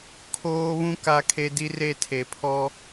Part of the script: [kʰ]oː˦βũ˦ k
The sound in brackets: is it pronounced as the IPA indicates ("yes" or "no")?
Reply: yes